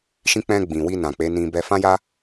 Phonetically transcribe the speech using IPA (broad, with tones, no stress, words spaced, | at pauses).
ʃĩ˧ k͡pɛ̃˧ ɡ͡bĩ˨wi˧ nã˨k͡pe˨˦nĩ˧ bɛ˧fã˦ja˦